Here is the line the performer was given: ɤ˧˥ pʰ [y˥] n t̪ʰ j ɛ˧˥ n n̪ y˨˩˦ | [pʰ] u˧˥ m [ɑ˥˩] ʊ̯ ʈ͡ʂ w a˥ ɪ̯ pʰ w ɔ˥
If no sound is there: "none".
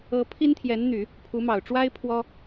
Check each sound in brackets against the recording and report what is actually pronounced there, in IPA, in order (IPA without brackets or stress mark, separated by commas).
i˥, pʰ, ɑ˨˩